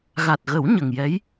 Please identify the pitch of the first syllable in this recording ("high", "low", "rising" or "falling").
low